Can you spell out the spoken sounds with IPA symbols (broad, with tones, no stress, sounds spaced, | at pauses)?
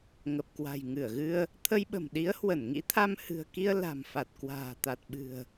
ŋ ə˨˩ p̚ k w a̤˨˩ j ŋ ɨ˧˩ ə̯ ɣ ɨ˧ ə̯ | t̪ʰ ə˧ j ɓ ə̤˨˩ m ɗ i˨˦ ə̯ h w ə˧˩ n ŋ ḭ˧˥ t̪ʰ a˧ m h ɨ̤˨˩ ə̯ k i˧ ə̯ l a̤˨˩ m f a˨˩ t̚ k w a̤ː˨˩ t̪ a˨˩ t̚ ɓ ɨ̤˨˩ ə̯